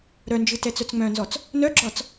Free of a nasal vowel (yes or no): no